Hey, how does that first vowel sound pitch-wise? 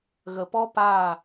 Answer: low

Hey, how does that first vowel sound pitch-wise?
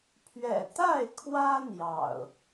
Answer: low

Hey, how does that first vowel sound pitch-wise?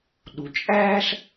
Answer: low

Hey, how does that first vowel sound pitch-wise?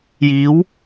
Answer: rising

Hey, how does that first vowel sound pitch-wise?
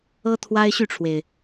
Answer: high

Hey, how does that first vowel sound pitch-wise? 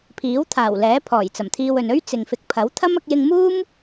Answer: rising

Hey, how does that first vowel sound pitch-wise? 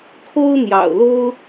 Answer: high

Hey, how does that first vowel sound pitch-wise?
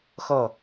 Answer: falling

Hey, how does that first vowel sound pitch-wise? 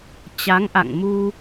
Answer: rising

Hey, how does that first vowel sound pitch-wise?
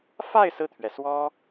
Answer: falling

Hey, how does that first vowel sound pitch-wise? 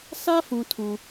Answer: high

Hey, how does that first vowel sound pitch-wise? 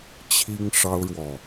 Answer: high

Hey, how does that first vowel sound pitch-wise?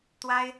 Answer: high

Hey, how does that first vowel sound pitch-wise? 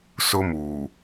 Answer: high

